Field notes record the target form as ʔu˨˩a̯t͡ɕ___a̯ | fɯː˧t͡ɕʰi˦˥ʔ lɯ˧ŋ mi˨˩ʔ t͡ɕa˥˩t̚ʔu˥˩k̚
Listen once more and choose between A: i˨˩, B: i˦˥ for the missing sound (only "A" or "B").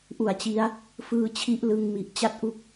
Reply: B